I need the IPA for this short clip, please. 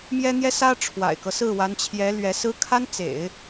m j ɛ˥ n̪ j ɛ˥ s ä˥ ʈ͡ʂʰ w a̰˨˩ ɪ̯ k ɤ˦ s ɹ̩˥˩ w a˧˥ n t͡ɕʰ j ɛ˧˥ l ɥ ɛ˧˥ s ɹ̩˥ kʰ a˥ n t͡s ḛ˨˩˦ ɪ̯

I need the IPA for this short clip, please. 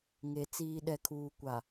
ŋ e˨ t͡s iː˨ ɗ ɛ˨ kʰ uː˨ kʷ a˨

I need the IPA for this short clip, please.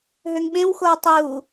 ɦ ø ŋ ɓ ẽ w x o w tˤ u

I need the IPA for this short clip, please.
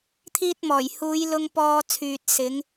t̪ʰ iː˧ t̚ m ɔː˨˩ j h uː˨˧ j l ʊ˧ ŋ p ɔː˧ t͡sʰ yː˨ t̚ s ɪ˨˧ ŋ

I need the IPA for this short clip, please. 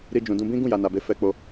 ɾ i˧ d͡ʒ ũ˨ d ũ˧ b ĩ˦ ɡ ũ˦˨ j a˨ n a˨ b e˨˦ f ɛ˧ k͡p o˧

